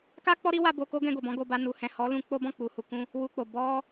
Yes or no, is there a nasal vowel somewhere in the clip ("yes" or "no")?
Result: yes